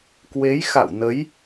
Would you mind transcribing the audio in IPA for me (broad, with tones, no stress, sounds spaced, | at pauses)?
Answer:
k w e˨˦ j x a̰˧˨ w n ə˨˦ j